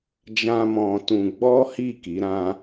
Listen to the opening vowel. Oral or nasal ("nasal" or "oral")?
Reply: nasal